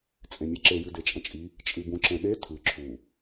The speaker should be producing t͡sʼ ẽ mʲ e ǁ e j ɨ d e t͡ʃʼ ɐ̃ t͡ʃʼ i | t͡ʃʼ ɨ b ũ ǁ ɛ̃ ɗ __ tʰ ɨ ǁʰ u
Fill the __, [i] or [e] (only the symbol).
e